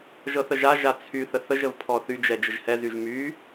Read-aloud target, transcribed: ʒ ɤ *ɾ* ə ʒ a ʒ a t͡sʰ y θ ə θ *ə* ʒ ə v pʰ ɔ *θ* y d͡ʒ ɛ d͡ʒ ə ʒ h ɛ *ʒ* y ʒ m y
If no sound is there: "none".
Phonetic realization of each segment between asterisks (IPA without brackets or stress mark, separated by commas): θ, ə, θ, z